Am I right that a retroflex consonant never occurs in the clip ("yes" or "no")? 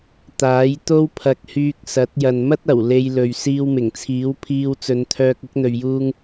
yes